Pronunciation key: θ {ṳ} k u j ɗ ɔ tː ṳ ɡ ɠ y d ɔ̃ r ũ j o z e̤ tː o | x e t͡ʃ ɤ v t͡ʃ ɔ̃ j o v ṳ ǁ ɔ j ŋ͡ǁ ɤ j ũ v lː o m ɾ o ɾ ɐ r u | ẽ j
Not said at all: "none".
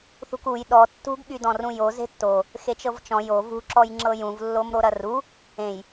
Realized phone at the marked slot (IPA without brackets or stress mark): ṳ